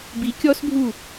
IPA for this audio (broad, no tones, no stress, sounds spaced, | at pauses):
b i kʲ ɔ s bʱ u